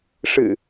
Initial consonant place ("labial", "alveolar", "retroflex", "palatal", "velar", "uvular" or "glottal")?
retroflex